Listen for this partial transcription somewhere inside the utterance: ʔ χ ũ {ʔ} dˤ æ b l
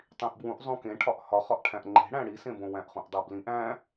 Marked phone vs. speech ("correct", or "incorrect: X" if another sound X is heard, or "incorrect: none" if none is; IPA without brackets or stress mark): correct